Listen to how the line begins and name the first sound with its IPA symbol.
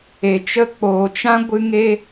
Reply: e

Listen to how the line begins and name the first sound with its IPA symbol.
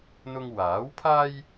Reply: n̪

